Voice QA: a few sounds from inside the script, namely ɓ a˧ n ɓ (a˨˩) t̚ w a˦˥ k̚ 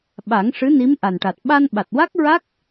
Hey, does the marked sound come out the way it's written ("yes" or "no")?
yes